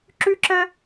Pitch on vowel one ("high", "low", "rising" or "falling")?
high